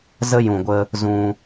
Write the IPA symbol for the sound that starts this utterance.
z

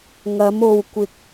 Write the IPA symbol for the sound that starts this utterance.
ŋ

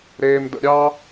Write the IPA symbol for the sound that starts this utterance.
ɾ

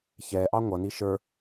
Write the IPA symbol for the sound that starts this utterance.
ç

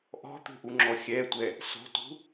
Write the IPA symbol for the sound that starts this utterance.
ʔ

